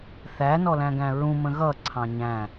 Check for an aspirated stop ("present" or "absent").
present